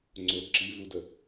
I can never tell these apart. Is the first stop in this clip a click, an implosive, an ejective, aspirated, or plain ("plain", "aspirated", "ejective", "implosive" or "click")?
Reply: click